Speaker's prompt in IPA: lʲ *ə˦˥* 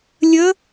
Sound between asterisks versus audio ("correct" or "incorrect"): correct